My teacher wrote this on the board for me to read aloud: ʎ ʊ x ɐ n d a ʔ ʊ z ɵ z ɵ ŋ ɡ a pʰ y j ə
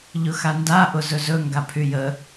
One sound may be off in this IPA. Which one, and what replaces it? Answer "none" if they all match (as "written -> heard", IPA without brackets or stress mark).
ɐ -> a